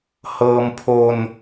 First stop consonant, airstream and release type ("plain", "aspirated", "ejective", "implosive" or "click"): aspirated